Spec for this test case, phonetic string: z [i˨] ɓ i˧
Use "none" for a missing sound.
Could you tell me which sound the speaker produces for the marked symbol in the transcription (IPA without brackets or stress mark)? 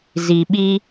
i˨